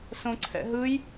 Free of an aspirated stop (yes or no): no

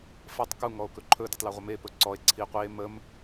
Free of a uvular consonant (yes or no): no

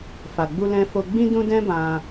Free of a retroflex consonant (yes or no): yes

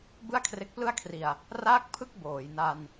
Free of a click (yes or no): yes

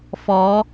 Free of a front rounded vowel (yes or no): yes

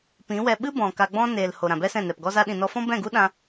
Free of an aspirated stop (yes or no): yes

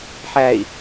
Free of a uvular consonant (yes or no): yes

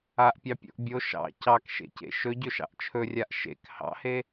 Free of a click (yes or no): yes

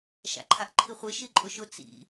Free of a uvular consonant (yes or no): no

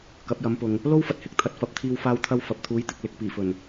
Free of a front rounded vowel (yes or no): yes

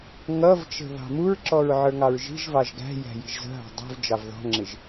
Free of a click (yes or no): no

